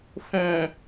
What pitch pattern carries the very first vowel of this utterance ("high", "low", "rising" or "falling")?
low